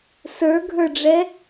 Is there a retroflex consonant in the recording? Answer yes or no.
yes